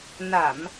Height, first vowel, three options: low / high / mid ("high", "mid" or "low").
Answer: low